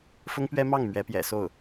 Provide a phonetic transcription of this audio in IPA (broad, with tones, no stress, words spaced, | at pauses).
fʊ˥ŋpɥɛ˥mɑ˥˩ŋ mɥɛ˧˥pjɛ̰˨˩so˥˩ʊ̯